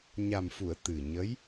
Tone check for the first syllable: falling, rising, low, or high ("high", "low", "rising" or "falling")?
low